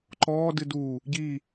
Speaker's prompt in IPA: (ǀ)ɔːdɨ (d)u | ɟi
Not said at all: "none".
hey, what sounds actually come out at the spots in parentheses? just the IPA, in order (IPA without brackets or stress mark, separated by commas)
ǃ, d